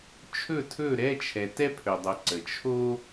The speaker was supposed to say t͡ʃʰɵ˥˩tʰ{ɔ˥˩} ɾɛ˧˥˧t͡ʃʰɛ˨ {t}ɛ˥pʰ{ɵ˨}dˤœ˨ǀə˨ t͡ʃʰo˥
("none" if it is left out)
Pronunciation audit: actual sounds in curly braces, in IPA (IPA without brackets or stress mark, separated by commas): ɵ˥˩, t, ɵ˨